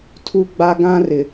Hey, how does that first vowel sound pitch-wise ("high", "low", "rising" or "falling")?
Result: high